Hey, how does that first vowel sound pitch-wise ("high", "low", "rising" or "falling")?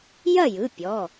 falling